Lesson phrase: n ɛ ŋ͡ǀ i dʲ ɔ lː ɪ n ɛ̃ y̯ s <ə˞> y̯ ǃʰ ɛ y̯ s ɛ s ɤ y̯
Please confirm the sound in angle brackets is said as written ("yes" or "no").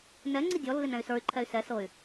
yes